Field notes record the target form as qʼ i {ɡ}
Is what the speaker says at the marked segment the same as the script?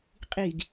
yes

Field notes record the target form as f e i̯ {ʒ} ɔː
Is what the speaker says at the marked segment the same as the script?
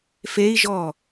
yes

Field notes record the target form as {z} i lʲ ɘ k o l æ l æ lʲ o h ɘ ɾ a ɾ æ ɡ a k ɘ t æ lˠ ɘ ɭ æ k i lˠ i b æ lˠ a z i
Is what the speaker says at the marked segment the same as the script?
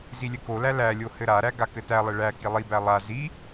yes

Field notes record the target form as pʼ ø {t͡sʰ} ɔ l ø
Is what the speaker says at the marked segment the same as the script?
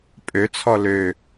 yes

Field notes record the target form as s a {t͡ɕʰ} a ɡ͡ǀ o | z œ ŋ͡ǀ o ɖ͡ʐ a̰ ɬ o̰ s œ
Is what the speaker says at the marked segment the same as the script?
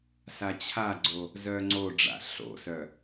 yes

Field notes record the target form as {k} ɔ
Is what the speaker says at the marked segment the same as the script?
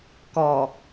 yes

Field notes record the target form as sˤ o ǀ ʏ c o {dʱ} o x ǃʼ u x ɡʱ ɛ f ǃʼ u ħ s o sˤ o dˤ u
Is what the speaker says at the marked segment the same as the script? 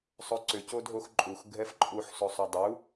yes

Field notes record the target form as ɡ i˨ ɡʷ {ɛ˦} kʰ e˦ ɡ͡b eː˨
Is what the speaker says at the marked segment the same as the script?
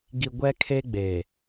yes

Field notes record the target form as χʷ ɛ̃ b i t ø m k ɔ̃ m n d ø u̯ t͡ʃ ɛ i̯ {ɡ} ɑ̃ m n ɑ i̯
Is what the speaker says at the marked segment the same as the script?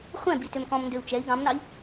yes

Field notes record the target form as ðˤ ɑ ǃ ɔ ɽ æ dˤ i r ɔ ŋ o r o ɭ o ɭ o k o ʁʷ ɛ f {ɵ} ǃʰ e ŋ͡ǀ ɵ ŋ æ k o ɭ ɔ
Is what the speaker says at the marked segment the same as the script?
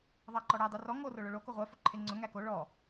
yes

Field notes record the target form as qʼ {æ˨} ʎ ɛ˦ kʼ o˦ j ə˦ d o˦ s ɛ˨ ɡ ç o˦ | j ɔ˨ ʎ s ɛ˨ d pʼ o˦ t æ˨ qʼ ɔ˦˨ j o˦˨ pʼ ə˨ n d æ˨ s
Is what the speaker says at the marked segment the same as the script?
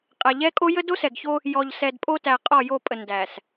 yes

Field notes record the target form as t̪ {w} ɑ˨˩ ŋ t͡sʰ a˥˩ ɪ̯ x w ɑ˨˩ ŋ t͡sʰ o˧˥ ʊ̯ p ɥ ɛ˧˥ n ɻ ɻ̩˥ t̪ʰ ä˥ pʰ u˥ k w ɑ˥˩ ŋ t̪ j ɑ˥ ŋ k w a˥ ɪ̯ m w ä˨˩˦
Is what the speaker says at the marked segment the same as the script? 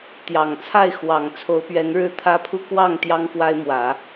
no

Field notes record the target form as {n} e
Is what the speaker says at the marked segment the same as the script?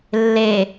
no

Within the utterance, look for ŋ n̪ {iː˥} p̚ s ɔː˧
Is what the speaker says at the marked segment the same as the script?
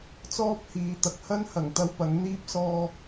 yes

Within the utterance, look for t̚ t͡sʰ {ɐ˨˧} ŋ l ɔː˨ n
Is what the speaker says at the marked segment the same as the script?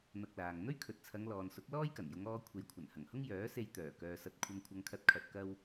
yes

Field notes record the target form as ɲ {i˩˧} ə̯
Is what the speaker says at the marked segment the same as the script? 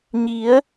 yes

